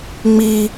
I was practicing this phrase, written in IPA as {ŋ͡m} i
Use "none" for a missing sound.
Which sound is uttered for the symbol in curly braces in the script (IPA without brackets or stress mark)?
ŋ͡m